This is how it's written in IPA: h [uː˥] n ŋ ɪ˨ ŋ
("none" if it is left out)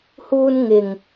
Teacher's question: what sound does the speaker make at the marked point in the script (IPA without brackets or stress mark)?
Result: uː˧